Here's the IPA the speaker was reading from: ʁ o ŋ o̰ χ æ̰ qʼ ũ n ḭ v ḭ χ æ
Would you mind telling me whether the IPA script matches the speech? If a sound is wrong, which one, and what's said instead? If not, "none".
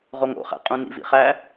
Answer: none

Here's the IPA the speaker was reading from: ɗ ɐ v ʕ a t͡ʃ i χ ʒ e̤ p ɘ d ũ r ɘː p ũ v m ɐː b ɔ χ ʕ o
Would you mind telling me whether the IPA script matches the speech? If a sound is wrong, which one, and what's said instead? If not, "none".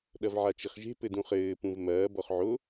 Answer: r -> χ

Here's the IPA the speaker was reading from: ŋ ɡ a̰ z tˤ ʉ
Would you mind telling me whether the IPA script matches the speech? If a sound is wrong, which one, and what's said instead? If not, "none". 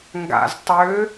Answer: ʉ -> ø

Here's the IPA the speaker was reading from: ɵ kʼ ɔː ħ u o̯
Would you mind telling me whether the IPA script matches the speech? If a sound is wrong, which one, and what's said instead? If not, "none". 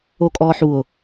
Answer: ɵ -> o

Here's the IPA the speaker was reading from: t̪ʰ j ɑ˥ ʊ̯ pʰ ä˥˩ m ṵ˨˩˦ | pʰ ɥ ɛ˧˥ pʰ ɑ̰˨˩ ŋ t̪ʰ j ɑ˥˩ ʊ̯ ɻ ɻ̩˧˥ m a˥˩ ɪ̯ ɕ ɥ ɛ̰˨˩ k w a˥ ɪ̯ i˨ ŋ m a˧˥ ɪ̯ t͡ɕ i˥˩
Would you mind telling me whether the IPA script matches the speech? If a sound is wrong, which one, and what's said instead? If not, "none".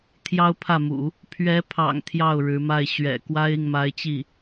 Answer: none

